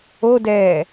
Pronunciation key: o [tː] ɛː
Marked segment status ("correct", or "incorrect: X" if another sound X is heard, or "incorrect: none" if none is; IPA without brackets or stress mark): incorrect: d